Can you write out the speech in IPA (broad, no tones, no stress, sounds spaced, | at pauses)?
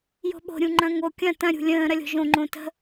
j o̤ ɓ o̤ ɾʲ ũ ŋ͡ǃ ɐ̃ ŋ o kʲ ɐ̃ t ɐ̃ ɾʲ ṳ lʲ ə̃ː ɾ ɐ lʲ o̤ ʒ õ ŋ͡ǃ õ t ə̤